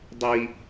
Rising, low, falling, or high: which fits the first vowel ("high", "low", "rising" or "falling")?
low